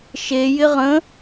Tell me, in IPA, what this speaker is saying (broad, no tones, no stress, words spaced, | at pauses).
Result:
ʃe jɪʁə̃